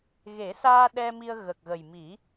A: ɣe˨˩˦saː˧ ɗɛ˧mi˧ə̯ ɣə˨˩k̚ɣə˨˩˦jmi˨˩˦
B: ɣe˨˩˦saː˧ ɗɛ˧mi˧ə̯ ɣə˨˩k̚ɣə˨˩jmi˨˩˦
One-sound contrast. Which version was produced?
B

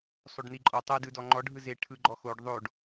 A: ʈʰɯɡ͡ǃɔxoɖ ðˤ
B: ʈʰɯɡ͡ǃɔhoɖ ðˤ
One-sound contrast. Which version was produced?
A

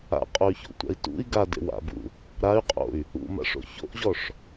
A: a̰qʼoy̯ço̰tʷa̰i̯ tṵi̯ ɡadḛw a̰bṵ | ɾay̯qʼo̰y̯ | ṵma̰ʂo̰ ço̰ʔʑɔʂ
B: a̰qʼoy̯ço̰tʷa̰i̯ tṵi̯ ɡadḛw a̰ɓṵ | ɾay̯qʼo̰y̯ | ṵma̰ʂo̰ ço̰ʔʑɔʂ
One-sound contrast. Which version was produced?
A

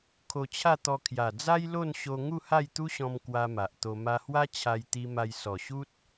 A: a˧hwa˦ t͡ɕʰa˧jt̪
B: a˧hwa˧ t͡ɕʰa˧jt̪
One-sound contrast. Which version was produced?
A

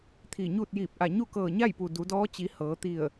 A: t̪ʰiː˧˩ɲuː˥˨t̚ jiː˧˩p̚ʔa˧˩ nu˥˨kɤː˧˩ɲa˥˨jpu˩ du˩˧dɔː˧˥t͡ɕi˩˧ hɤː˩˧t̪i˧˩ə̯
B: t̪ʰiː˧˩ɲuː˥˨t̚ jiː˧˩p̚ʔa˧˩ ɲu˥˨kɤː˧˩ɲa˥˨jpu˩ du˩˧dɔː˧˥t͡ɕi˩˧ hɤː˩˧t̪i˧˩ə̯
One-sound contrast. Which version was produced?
B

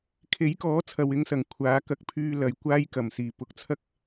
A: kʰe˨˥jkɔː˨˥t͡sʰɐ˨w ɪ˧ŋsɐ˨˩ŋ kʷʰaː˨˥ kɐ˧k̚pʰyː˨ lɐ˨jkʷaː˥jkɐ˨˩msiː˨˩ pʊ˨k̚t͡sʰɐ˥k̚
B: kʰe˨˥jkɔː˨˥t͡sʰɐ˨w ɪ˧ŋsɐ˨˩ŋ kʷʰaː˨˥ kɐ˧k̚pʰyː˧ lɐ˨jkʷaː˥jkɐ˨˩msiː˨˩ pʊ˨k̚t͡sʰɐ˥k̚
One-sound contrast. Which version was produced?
B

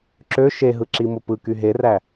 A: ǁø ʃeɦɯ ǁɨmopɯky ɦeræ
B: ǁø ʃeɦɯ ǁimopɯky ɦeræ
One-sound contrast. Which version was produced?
B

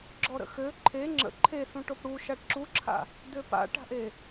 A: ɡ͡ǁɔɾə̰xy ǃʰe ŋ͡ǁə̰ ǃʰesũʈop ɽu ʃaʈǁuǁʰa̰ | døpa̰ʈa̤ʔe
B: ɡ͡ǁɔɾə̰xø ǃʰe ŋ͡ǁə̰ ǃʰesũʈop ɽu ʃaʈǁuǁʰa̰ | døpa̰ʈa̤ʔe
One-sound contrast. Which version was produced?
B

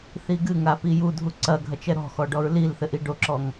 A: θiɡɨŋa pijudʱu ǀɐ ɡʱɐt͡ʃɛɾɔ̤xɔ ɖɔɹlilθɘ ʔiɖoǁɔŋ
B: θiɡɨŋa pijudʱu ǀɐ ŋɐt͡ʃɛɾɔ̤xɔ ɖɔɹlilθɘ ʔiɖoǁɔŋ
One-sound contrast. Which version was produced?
A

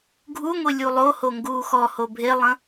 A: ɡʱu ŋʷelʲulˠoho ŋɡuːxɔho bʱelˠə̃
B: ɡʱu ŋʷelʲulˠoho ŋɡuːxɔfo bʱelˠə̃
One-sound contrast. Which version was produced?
A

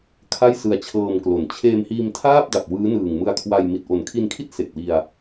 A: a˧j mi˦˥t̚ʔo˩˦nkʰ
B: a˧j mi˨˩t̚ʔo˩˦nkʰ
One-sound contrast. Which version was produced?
B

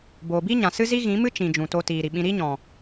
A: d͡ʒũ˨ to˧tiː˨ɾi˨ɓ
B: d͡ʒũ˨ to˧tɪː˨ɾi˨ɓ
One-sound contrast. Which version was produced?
A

